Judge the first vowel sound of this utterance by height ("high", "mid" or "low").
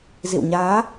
high